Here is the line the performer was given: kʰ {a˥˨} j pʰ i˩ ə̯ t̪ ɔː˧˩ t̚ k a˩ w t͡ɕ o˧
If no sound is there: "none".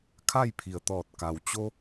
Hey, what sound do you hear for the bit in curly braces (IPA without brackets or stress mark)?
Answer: a˥˨